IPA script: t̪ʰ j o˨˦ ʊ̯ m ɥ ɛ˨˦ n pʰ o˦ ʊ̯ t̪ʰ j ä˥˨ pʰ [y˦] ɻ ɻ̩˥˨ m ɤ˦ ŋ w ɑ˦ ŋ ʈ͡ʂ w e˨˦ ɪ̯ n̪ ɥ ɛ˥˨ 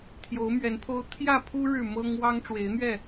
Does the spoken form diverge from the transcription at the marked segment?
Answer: yes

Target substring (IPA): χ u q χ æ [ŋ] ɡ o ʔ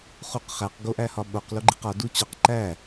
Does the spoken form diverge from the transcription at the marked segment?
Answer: yes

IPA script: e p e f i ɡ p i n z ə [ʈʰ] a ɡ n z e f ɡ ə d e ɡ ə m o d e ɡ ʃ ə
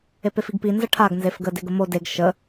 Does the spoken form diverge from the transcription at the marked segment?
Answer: no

